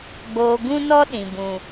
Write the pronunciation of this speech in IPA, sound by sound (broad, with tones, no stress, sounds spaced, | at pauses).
ɡ͡b oː˧ ɡ ũ˦ n ɔ˦ ɗ ĩ˨ b ũ˨